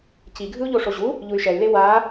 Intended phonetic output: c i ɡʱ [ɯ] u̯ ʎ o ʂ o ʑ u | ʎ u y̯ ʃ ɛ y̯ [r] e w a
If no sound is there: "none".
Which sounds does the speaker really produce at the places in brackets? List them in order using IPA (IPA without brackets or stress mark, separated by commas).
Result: ɯ, l